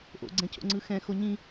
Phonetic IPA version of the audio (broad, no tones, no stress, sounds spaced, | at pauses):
ʔ o̰ ɡ͡ǀ ɛ̃ cʰ o̰ ŋ͡ǀ ɯ x ɛ̃ x o ɲ ĩ